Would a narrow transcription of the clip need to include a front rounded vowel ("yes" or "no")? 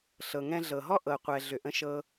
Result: yes